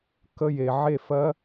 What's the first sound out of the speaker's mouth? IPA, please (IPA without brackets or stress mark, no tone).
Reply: k